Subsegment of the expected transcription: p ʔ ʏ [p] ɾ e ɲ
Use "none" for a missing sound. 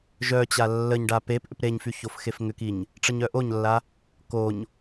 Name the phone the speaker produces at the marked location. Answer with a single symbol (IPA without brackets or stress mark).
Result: p